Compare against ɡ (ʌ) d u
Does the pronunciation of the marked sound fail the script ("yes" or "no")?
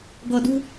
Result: no